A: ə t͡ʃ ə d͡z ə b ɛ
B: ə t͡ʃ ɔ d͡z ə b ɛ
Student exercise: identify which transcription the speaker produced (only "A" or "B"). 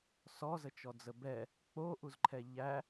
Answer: B